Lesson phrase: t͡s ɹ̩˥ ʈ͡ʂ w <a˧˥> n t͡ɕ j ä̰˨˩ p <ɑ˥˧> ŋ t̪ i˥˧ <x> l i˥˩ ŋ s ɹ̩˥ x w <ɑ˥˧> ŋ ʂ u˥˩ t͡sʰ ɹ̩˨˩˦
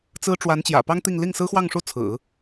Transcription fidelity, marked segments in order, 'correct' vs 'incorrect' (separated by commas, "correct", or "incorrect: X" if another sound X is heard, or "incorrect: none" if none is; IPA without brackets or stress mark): correct, incorrect: ɑ˥, incorrect: ŋ, correct